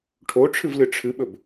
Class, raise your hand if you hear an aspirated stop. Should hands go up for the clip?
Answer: yes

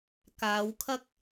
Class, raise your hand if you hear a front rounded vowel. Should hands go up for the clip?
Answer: no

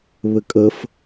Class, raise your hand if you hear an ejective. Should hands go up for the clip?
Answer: yes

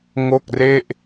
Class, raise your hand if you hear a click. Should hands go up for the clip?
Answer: no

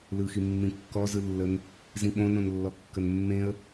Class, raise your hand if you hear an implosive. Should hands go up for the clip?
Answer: yes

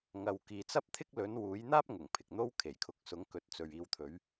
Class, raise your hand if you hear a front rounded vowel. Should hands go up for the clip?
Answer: no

